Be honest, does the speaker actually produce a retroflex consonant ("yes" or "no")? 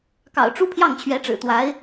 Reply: yes